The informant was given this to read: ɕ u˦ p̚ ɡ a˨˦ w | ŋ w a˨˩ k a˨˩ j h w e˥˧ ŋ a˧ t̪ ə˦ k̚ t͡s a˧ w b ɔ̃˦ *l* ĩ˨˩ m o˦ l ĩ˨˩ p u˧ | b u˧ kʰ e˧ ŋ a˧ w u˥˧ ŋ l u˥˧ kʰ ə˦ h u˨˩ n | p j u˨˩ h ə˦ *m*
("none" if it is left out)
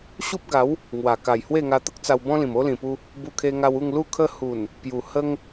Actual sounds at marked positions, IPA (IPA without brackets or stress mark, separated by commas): l, ŋ